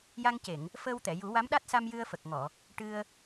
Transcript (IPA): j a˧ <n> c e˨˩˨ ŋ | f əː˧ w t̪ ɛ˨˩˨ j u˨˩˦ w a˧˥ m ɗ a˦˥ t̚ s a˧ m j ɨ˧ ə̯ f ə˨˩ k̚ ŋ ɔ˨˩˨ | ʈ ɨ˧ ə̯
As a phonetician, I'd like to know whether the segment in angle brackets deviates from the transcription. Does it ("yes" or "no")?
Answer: yes